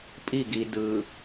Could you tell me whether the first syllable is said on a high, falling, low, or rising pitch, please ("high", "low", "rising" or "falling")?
falling